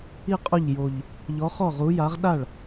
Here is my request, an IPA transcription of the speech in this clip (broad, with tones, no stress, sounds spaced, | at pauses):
i˥˩ qʼ u˥˩ ʎ j o˨˩ ʎ | ʎ ɔ˨˥ χ ɔ˥˩ ʁ u˨˥ j a˨˥ ʁ ɗ a˥˩ ɭ